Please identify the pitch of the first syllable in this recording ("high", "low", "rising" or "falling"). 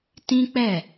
high